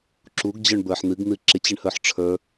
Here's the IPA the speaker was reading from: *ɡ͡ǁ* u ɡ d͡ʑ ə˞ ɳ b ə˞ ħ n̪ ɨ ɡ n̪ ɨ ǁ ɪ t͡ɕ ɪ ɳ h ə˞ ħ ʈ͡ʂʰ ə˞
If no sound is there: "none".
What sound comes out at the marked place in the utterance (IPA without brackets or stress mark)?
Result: ǁ